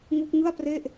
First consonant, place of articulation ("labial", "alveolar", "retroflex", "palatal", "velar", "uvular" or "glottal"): velar